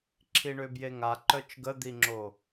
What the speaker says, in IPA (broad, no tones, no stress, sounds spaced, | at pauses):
ǁʰ i ɳ ø b j e ŋ a ǃ œ t͡ʃ ɡ ə d̪ i ŋ͡ǁ o